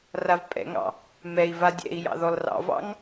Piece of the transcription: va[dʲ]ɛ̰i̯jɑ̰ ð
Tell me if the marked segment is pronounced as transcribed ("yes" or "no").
yes